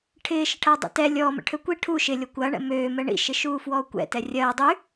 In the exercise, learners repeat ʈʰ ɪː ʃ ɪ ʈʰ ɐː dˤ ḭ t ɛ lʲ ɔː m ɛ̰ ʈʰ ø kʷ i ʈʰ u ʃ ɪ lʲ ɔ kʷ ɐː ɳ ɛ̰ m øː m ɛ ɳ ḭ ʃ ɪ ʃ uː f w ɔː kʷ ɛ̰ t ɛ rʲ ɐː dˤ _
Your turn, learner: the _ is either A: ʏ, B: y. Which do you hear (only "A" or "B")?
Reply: B